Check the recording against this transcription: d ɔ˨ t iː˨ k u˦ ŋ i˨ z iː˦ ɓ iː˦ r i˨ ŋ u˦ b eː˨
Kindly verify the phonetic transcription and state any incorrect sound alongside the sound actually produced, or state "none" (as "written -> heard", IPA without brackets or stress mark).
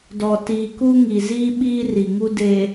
b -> d